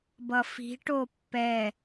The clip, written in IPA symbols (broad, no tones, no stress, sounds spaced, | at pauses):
b ʌ f i̤ ʈ o pː ɛ